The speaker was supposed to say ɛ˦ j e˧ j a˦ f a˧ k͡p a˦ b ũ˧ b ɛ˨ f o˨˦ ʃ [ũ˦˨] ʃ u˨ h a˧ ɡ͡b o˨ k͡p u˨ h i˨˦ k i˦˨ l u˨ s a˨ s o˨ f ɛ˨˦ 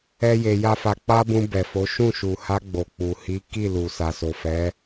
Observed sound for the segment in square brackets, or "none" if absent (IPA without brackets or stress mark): ũ˦˨